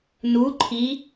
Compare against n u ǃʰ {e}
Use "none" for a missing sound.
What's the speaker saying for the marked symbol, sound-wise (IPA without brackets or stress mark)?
i